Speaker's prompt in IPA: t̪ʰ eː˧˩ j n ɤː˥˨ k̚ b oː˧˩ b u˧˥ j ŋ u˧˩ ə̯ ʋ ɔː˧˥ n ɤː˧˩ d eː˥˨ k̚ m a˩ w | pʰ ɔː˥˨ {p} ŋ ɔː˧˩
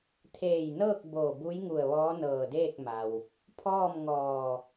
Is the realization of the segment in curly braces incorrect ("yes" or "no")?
yes